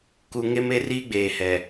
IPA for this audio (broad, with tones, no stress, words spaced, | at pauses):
ku˨ŋe˦me˦riː˦ ɡ͡beː˨hɛ˨